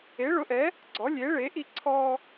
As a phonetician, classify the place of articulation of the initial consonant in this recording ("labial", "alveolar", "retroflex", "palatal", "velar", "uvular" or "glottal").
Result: retroflex